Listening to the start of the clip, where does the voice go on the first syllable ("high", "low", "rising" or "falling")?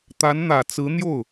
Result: rising